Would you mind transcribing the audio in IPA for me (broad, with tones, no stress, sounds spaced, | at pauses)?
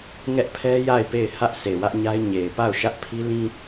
ŋ ɛ˦ ʔ pʰ ɛ˦ j a˦˨ ɪ̯ p e˦˨ ɪ̯ h ä˦ ʔ sʰ e˨ w ä˦ ʔ ɲ a˦ ɪ̯ ɲ e˨ ɪ̯ p a˦˨ ʊ̯ ʃ ä˦ ʔ pʰ i˦ l ĩ˦